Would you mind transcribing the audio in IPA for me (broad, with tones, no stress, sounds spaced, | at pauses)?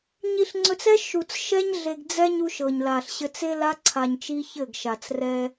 ɲ i˨ ɬ ŋ͡ǀ ɵ˨ t͡s ɛ˦ ʃ u˨ t͡s ʃ ɛ˦ ɲ ɮ e˨ ɡ d͡z ɛ˦ ɲ u˦ ʃ ɤ˨ ɲ l a˨ ɬ ɕ ɘ˦ t͡s e˦ l a˦ ǀʰ a˨ ɲ t͡ʃ i˦ ç ɘ˦˨ ɡ ʃ a˨ t͡s r ɛ˦